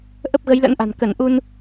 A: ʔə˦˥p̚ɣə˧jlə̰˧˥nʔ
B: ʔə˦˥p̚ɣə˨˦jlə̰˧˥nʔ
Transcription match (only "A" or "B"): B